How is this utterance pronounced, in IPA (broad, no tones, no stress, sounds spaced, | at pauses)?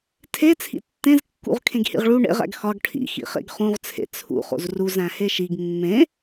tʰ e t͡sʰ ḭ tː ẽ z kː ṵ ʁ kʰ ẽ ɡ h ḭ ʁ ɭ u ɳ ḛ ʁ æ̰ ɡ x ɒ ɡ ʈʰ ḭ x ḭ χ ḛ ɡ χ ũ ʁ t͡sʰ ḛ t͡sʰ ṵ χ o̰ z r u z æ̃ h e ʃ i ɡ mː ẽ